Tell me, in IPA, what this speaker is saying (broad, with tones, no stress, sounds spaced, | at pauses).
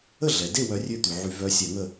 ə˥˨ ɮ ɛ˩ d e˥˨ w œ˧˥ rʲ ø˥˨ t̪ y˩ ʕ y˧˩˧ v œ˧˥ sʲ ɛ˧˩˧ ŋ ə˥˨